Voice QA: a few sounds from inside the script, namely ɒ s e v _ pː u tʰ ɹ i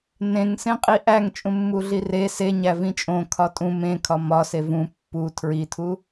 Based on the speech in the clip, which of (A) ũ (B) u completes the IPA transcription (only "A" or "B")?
A